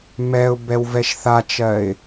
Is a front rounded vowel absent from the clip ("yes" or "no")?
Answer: yes